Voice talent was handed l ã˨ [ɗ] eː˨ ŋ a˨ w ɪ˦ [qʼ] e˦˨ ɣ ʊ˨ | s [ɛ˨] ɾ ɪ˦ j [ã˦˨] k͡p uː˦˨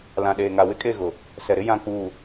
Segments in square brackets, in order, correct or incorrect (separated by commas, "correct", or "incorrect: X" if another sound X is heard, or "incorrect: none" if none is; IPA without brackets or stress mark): correct, incorrect: kʼ, correct, correct